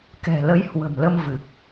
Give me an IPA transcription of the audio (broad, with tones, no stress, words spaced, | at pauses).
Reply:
kɛ̤˨˩lə˨˦jhwə̤˨˩mlə˧m vɨ˨˩k̚